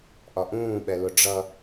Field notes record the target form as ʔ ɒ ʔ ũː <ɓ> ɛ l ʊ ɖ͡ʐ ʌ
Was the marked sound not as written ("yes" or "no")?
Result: no